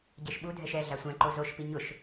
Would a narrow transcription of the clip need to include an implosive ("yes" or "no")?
yes